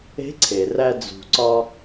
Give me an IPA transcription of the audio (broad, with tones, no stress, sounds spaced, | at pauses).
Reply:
e̤˧˥ ǀʰ e˩ r æ˧ d͡z ṳ˩ ǀ ɒ˧